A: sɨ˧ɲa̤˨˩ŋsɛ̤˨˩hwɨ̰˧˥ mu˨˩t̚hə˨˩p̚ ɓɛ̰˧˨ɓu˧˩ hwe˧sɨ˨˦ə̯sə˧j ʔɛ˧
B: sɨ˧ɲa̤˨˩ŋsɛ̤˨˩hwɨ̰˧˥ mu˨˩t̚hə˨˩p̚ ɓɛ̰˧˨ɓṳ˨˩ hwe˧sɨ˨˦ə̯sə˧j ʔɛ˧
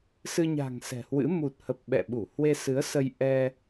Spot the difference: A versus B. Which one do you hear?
A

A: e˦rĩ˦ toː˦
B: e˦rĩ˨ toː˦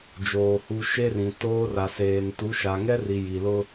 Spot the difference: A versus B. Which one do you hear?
B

